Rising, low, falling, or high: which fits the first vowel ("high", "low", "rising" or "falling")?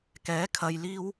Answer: rising